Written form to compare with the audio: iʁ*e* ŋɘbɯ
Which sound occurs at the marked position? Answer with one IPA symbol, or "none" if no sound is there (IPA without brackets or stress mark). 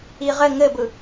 ɘ